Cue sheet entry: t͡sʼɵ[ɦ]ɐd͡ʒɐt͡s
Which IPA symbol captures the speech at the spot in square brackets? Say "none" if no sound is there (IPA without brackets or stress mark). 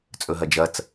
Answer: ɦ